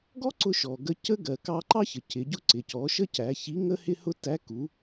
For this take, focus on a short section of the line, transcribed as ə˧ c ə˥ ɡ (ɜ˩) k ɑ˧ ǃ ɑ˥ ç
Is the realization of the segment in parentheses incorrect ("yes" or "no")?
no